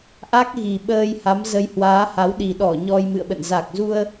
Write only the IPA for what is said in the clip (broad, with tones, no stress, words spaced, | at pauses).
ʔa˦˥k̚ɣi˨˩ ɓəː˧j ha˨˦mzə˧j hwaː˨˦ha˨˦w ɗi˨˩ ɗɔ˧˩ ɲɔ˧jmɨ̰˧˨ə̯ɓə̰˧˨n za˨˩k̚zu˧ə̯